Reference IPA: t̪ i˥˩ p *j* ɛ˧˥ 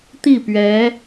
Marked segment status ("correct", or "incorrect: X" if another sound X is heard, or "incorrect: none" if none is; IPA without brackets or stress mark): incorrect: ɥ